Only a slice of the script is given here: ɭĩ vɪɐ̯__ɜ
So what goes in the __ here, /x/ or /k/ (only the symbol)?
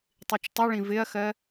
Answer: x